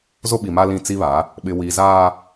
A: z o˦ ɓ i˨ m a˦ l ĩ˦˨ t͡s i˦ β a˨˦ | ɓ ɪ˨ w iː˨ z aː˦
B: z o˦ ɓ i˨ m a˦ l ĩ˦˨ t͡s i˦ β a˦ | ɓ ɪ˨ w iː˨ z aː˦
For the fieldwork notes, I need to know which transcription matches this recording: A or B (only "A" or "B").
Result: A